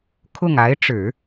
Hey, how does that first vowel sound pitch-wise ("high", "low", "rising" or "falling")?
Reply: falling